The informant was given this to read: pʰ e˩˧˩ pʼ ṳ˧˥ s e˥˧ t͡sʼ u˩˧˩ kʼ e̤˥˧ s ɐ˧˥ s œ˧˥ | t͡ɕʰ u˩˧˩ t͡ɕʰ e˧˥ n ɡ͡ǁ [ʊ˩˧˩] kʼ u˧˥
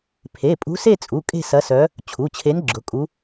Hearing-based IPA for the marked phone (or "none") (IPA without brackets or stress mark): ʊ˩˧˩